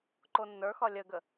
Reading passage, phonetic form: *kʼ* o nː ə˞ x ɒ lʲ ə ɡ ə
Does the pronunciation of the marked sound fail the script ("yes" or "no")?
yes